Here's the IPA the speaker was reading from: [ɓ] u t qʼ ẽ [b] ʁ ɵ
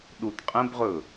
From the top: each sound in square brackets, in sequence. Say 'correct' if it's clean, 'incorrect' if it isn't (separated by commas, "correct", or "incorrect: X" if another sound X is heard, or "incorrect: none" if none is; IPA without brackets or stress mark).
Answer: incorrect: ɗ, correct